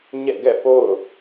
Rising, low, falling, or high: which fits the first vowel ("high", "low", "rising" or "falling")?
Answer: falling